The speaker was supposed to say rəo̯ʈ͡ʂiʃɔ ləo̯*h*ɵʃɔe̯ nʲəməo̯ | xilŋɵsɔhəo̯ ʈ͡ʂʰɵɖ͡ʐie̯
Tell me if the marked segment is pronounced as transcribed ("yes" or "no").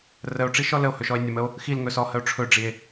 yes